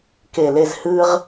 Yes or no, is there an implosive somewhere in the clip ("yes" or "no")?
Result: no